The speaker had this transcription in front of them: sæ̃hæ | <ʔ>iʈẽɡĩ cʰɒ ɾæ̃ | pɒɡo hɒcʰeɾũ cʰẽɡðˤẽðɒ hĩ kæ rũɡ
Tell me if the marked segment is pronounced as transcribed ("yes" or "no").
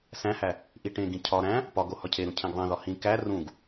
yes